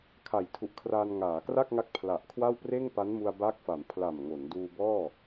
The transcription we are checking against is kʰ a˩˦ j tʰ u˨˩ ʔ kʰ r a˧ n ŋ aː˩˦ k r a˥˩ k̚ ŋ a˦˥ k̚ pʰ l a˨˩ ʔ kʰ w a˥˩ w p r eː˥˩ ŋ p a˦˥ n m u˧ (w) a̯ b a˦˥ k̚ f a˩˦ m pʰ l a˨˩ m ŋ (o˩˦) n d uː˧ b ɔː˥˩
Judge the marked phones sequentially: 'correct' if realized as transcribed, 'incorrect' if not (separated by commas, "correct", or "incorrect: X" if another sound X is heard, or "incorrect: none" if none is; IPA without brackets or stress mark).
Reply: incorrect: none, correct